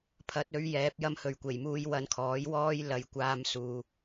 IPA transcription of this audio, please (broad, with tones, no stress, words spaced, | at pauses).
pʰɐ˨˥t̚ ɵ˨˥ɥjɛː˨˥p̚ jɐ˧mhɵ˨ɥkʷe˨˩jmuː˧j wɐ˧nkʰɔː˨˥jwɔː˥j lɐ˨˧j kʷaː˨˧m suː˧